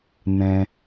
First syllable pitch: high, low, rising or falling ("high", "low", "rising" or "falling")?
low